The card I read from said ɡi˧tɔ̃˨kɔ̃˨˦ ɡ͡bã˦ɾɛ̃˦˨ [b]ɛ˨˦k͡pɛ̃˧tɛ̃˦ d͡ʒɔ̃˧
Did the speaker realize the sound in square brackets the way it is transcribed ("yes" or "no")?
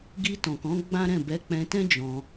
yes